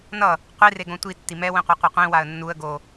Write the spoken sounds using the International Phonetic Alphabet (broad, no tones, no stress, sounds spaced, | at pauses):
n ʌ | qʷ i r e ɡ õ tʷ i tː i m ɛ w ĩ qʷ a qʷ i qʷ ĩ w a ə̯ nː u ə̯ ɡ o